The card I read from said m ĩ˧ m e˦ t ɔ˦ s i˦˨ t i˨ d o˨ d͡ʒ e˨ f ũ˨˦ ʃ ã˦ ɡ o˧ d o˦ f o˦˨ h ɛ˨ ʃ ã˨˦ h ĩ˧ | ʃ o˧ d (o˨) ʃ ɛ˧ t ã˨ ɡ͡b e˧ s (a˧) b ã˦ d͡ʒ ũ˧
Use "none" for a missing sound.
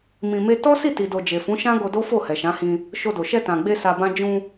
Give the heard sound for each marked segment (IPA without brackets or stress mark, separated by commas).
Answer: o˨, a˧